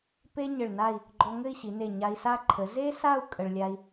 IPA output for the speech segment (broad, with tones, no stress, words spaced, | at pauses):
pe˥ ɲɘ˧˩ɭna˥˧i̯ | ɡ͡ǃɔ˧ŋɘ˥˧i̯ɕi˩˧ne˧˩ ɲa˧i̯sa˥ ǃʰə˩˧ ze˥sa˥˧u̯ kʼə˧ɭlʲa˥i̯